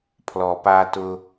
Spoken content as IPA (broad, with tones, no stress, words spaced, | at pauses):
pʰlɔ˩pa˨tʊ˨